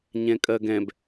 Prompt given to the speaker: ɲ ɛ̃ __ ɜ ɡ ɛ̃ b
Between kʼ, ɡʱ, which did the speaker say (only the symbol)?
kʼ